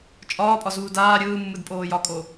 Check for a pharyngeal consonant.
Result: absent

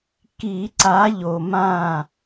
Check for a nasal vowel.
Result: present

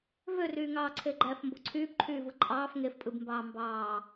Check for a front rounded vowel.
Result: present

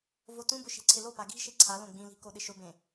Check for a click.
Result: present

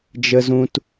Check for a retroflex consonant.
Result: absent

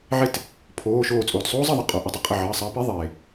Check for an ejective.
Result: present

